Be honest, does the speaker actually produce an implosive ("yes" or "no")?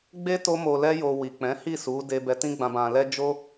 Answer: no